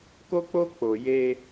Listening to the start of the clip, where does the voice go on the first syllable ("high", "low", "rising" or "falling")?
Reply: high